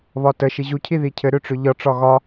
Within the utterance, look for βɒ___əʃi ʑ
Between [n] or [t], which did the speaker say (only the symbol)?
t